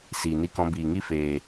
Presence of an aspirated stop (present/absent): absent